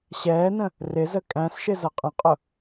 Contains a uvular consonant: yes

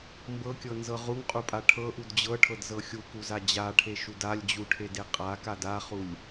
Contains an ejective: yes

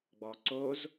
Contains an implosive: no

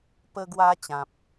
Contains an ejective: no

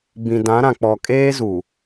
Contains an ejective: yes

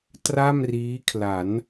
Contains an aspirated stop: yes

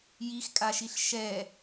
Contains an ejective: yes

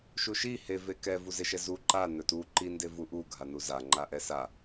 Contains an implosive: no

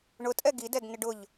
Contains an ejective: yes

